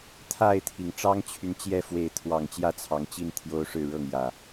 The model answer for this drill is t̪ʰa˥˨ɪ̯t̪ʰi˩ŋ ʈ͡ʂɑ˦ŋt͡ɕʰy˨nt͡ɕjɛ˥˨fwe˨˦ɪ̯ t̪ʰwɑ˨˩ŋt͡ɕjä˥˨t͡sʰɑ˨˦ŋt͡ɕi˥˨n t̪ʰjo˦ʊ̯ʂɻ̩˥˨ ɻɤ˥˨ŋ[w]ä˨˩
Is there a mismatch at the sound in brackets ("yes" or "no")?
yes